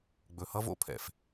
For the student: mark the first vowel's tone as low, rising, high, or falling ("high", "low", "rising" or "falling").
low